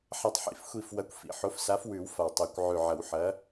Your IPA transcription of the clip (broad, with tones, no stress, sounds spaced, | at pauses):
ħ a˨˩ tˤ ħ ḭ˨˩ f xʷ i˨˩ f w ɐ˨˥ kʷ f ḭ˨˩ ħ o˨˥ f s a˨˥ f w ʉ˨˩˦ w f a˨˩ w tˤ e˨˩˦ kʷ ʕ ʉ˨˩ ʕ ɐ˨˩˦ w ħ ɐ˨˥